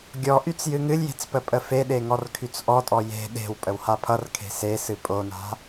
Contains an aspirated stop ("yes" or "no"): yes